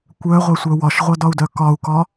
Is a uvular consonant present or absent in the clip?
present